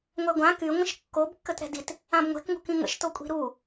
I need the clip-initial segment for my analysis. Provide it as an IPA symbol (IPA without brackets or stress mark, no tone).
ŋʷ